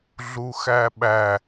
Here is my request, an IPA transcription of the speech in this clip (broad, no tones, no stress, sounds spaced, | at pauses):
ɮ u x æ ɓ æ